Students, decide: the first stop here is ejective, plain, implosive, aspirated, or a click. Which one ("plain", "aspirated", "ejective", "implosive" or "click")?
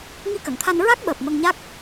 plain